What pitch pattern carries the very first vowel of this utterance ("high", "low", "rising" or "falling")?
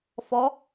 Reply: rising